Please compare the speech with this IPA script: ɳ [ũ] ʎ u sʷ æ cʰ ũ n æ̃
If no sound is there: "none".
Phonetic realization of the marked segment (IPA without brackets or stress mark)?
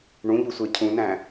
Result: ũ